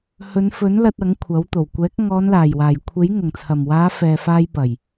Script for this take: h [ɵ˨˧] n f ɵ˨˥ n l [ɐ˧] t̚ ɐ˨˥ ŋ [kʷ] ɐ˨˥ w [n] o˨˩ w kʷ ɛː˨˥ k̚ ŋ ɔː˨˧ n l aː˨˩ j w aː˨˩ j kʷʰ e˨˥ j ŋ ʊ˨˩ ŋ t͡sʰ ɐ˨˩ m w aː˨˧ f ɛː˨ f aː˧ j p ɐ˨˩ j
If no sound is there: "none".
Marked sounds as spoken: ɵ˨˧, ɐ˧, kʷʰ, t̪

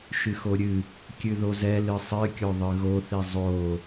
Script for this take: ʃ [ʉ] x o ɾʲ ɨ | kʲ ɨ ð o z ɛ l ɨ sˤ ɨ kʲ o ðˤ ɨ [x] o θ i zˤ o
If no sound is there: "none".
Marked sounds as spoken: ɨ, ɣ

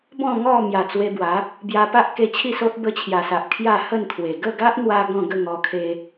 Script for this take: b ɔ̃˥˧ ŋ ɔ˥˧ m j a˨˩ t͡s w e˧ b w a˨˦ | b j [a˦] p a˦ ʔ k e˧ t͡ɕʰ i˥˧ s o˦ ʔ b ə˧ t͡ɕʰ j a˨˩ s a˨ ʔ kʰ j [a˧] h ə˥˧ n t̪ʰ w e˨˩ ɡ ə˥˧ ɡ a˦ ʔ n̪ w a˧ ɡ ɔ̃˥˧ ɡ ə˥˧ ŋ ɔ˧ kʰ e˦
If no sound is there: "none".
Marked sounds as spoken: a˧, a˥˧

